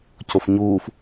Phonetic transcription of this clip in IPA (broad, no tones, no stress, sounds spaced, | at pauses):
c o f ɲ uː f